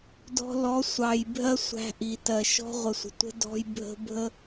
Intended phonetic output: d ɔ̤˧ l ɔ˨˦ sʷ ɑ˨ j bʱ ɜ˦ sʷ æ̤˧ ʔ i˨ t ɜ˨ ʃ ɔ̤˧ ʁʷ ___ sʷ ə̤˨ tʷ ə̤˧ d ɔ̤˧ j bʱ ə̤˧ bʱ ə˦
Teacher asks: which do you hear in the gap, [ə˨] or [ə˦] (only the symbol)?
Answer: ə˨